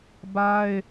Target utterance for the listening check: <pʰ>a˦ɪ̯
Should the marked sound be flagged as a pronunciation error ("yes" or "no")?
yes